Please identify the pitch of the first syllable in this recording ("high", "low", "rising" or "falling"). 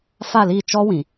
falling